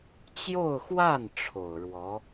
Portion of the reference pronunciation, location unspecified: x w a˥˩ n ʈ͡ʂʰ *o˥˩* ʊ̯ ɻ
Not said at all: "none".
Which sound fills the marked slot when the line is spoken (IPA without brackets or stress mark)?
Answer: o˨˩